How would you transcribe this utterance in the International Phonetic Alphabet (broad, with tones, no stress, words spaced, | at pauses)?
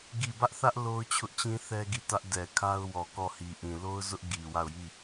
ɡi˦˨ bä˦ʔθä˦ʔ lo˦ʊ̯t͡ɕʰʊ˦ʔt͡ɕĩ˦ θɛ˦ɡi˦˨tä˦ʔ dɛ˨ kʰa˦ʊ̯wɔ˨kɔ˦˨ hi˨ʔĩ˨ lo˦ʊ̯zʊ˦ʔ ɡi˨wa˦˨ʊ̯ji˦˨